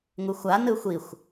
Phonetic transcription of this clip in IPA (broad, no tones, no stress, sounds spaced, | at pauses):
ŋ u xʷ a n ɯ xʷ i xʷ